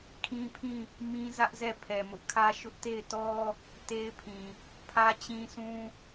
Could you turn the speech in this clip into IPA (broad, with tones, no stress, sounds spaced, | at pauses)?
kʰ ĩ˦ pʰ ĩ˦˨ | m ĩ˦ z ä˦ ʔ z ɛ˦˨ pʰ ɛ˨ m ʊ˦ ʔ kʰ ä˦ ʃ ʊ˦ ʔ t e˦˨ ɪ̯ t ɔ˦ | t e˦ ɪ̯ pʰ ĩ˨ | pʰ ä˦ t͡ɕ ĩ˦ s ũ˦